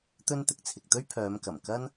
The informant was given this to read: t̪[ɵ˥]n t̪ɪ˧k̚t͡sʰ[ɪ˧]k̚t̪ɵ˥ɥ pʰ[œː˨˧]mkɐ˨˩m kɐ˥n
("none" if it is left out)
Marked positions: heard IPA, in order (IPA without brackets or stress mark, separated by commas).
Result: ɵ˥, ɪ˨, œː˨˧